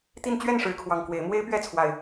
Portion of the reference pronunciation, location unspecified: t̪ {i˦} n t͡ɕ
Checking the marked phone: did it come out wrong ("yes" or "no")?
yes